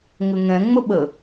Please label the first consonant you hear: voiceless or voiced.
voiced